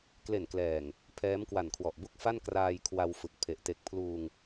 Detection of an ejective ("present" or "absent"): absent